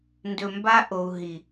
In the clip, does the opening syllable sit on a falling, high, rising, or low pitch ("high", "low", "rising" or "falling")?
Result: low